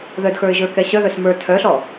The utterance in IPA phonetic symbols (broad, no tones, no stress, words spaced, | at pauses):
ðœdxə˞ɪ̯ʒə˞kɛ ɕœðœs mə˞ tʰœɬɔ